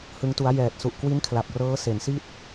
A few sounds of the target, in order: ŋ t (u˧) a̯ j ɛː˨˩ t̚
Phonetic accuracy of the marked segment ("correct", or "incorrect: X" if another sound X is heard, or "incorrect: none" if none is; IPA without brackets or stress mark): incorrect: u˦˥